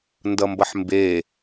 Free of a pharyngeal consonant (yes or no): no